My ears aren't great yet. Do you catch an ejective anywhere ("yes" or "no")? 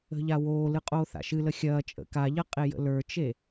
yes